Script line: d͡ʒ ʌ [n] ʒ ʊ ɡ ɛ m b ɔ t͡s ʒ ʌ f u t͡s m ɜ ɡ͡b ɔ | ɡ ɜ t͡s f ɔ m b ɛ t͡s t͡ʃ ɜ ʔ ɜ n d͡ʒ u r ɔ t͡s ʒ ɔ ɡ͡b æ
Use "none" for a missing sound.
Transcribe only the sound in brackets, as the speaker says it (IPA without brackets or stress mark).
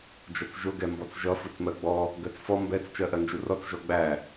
t͡s